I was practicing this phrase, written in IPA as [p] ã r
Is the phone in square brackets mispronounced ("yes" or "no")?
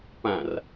no